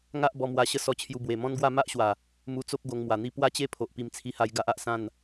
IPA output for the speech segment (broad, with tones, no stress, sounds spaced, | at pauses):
ŋ a˦ ʔ b ɔ˧ m w a˧ ɕ ə˦ s ɔ˧ t͡ɕʰ j u˧ b w e˨˩ m ɔ̃˦ n ɡ w a˥˧ m a˦ ʔ ɕ w a˨˩ | m u˧ t͡s o˦ p̚ ɡ o˧ ŋ m w a˨˩ n̪ i˥˧ p w a˦ t͡ɕ e˥˧ pʰ o˨ ʔ p i˧ m t͡sʰ i˧ h a˧ j ɡ a˦ ʔ a˨ ʔ s ã˥˧ n